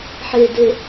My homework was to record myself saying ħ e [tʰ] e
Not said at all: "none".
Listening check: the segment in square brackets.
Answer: d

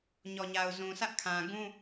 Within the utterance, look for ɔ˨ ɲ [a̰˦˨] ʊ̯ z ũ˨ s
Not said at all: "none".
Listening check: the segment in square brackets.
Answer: a˨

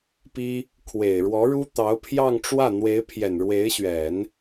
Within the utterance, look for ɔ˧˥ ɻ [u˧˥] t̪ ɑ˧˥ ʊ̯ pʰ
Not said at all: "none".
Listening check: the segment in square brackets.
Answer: u˥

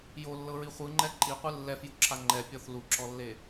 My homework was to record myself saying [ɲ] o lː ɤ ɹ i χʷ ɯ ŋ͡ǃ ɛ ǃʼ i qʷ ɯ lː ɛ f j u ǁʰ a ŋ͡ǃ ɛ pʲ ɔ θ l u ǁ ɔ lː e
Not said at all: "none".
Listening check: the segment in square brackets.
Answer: j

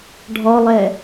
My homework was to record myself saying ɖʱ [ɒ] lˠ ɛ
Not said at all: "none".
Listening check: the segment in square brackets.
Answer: ɒ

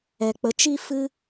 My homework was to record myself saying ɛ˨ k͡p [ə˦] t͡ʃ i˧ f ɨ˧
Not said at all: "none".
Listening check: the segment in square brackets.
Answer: ə˨˦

